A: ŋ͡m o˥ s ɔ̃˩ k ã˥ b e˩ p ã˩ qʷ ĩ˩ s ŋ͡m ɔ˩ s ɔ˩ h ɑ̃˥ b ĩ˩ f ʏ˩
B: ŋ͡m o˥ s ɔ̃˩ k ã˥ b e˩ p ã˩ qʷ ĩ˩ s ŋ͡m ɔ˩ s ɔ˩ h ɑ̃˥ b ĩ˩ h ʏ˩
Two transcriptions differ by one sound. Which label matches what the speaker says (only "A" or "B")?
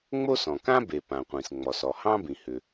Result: B